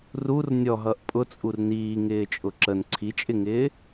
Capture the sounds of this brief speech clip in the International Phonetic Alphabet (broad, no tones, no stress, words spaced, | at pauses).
rur nʲɔɦʌʔ pʼʊt͡sʼur niːŋɪːt͡ʃʼʊ ǁən ǀʰit͡ʃʼɪŋɪː